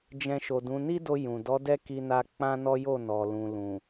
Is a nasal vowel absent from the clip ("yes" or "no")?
no